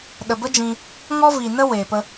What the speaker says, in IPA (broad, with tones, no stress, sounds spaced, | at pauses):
ɗ ə˨ b ə˦ d͡ʒ ĩ˧ | ŋ ɔ˦ v i˨ n ə˦ w eː˨ p ə˦